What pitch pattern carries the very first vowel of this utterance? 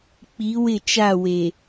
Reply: rising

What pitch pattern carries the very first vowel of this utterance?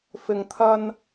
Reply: low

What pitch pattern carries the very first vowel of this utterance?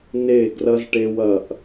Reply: falling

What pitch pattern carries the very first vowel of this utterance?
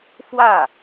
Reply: falling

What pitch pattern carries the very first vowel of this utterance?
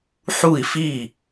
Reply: falling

